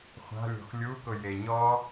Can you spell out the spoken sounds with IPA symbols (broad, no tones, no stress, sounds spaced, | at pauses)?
χʷ a̤ lʲ o̤ x lʲ u k ʊ j e ɲ ɔ